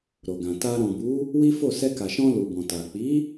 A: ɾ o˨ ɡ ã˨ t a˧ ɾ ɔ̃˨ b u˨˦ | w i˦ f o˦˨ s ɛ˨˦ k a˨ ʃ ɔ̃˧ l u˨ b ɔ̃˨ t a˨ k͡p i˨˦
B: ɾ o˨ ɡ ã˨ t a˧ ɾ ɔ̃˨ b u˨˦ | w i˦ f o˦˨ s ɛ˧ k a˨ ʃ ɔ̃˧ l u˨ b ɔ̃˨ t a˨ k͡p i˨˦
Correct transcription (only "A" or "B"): B